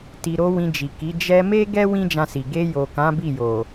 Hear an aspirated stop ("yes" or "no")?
no